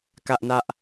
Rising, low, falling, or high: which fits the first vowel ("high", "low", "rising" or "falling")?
high